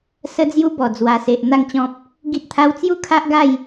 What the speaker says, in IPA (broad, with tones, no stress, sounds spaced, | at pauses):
s ə˦ d͡z j u˦ b ɔ˨˩ d͡z w a˨˩ s e˨ ʔ n̪ a˥˧ ŋ t͡ɕ ɔ̃˦ p̚ | ɡ i˦ t̚ t̪ʰ a˦ w t͡s j u˥˧ kʰ a˦ ʔ ɡ a˥˧ j